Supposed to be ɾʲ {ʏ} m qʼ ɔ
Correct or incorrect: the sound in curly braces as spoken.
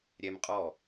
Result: incorrect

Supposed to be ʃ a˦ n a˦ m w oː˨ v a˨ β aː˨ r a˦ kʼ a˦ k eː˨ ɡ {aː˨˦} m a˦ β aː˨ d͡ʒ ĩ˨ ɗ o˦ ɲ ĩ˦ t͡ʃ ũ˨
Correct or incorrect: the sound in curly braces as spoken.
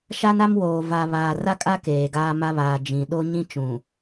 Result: incorrect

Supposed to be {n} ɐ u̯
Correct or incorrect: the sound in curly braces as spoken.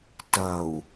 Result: incorrect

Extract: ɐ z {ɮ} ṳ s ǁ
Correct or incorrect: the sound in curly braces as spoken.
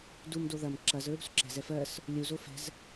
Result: incorrect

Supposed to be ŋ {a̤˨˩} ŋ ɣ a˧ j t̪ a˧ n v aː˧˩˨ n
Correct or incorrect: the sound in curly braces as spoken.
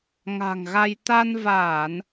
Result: correct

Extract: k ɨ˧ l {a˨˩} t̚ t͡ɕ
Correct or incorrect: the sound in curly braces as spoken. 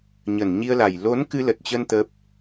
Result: incorrect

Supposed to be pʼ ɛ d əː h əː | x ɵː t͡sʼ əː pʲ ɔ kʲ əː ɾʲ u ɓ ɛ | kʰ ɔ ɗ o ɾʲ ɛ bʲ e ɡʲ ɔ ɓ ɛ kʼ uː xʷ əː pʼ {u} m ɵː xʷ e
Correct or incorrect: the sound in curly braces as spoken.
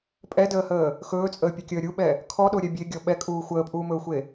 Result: incorrect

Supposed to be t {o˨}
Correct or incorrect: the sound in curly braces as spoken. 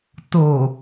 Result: correct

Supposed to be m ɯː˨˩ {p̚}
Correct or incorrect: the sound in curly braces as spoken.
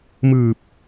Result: correct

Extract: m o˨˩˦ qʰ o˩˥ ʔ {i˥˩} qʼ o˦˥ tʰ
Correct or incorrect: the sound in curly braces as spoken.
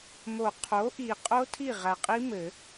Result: incorrect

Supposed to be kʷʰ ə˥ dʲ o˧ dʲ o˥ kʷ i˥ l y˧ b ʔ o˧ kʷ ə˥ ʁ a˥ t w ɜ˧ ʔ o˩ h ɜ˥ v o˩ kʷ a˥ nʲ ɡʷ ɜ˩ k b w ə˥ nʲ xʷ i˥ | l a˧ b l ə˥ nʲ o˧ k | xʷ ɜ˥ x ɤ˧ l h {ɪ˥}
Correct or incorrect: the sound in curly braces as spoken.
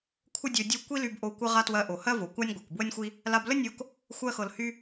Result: incorrect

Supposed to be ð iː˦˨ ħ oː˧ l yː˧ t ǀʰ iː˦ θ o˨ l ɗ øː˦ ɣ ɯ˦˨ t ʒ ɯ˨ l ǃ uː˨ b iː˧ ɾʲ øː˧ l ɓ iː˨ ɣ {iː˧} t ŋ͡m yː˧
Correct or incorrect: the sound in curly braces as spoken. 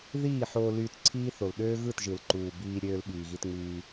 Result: incorrect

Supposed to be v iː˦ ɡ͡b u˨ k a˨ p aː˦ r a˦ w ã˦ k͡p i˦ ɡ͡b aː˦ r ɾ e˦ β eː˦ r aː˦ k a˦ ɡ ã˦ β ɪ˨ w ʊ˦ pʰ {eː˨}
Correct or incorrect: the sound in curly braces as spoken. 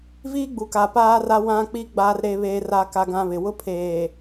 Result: correct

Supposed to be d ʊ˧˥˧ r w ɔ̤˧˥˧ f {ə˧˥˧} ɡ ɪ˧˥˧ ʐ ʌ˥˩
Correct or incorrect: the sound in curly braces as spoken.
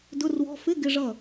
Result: incorrect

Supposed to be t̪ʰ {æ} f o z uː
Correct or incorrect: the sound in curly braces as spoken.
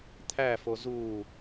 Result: correct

